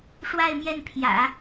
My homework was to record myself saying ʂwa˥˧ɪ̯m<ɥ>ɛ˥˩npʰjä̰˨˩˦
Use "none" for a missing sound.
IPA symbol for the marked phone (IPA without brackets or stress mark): j